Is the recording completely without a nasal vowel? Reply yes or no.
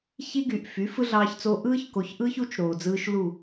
yes